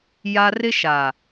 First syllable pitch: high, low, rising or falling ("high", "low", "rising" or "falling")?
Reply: high